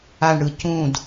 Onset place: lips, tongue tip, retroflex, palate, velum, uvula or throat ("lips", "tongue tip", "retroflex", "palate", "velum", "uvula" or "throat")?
retroflex